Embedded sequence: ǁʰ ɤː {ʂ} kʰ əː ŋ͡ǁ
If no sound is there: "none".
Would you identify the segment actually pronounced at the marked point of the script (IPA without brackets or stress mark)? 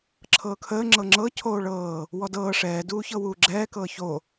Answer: none